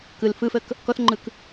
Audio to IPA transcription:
k ɯ l f ɯ f ə k | k ɔ θ ŋ͡ǃ ɯ k

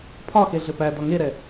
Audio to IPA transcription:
pʰ ɒ x e ɮ ɘ p æ d ɒ ŋ e ɾ ɛ

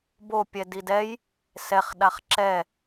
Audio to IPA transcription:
b o pʲ ɛ d i d ɛ j | s ɛ χ ɗ a χ ǁ ɛ

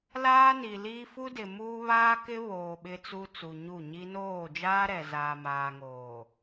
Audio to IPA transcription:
l aː˦ n i˨ l iː˦ f u˦ d ɪ˨ m uː˦ β aː˦ k ɪ˦ β oː˨ ɓ ɪ˦ t͡s u˦ t͡s u˨ ɲ u˦˨ ɲ i˦ n oː˦˨ d͡ʒ aː˦ ɾ ɛ˨ z aː˨ m aː˨ ŋ oː˨

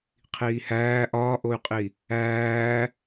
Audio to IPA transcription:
qʰ iː h æː ʔ ɒː ʔ o y̯ qʼ i | æː

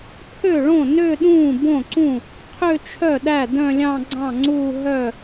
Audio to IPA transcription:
pʰ ø˥˩ ɭ õ˥˩ n ø˥˧ ɗ ũː˥˩ b õ˥˩ ǀ ũ˥˩ | qʰ ø˥˧ t͡ʃʰ œ˥˩ ɗ æ˥˩ d œ̃˥˧ lʲ ɑ̃˥˧ ɡ͡ǀ ɑ̃˥˩ ŋ͡ǀ uː˥˧ ɦ œ˥˩

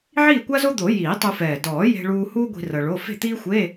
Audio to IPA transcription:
ʕ iː˥˨ kʷ a˥ z o˥ d̪ o˨˩˦ j iː˨˩˦ tˤ u˧ f ɛː˨˩ d ɔː˨˩˦ j e̤˧ ɭ uː˧ h uː˥ ɡʷ i̤˧ r ɤ˧ ɭ o˧˥˧ f e̤˥˨ t̪ iː˥ xʷ e˧˥˧

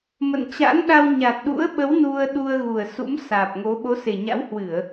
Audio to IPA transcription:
m ə̰˧˨ n t͡ɕ a̰˧˥ n ɗ a˧ w ɲ a˨˩ t̚ ɗ ṵ˧˥ ə̯ ɓ ə˨˦ w n u˧ ə̯ ɗ u˧ ə̯ ɣ u˨˩ ə̯ s ṵ˧˥ m s aː˨˩ p̚ ŋ o˨˦ ɓ o˨˦ s e˨˩ ɲ a̰˧˥ w h w ɨ˧˩˨ ə̯

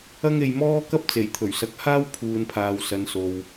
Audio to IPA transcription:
ɐ˥ ŋ e˧ j m ɔː˥ k ɐ˥ p̚ t͡s e˨˩ j t̪ʰ ɵ˨˩ ɥ s ɐ˨˥ k̚ h aː˥ w pʰ uː˨ n pʰ aː˨ w s ɐ˨˧ n s o˨ w

